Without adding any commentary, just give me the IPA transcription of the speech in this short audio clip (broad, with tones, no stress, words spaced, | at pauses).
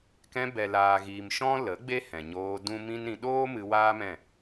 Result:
kɛ̃˧ bɛ˨laː˨ɣiː˨m ʃɔ̃˦lə˨˦ɡ͡be˦hɛ̃˨ ɲoː˧dũ˦ mĩ˦nɾĩ˧ ɗoː˦ mɨ˧waː˦mɛ̃˦˨